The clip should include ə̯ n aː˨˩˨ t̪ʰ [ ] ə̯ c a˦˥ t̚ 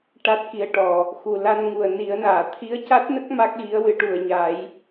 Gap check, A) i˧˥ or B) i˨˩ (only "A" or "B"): A